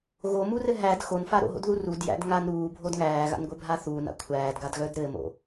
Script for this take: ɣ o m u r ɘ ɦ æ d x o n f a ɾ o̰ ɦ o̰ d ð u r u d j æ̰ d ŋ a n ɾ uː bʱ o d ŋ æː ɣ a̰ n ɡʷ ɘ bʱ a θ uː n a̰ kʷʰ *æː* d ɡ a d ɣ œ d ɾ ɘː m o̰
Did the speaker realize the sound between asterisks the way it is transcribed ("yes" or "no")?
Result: yes